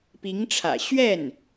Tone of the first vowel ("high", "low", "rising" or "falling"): rising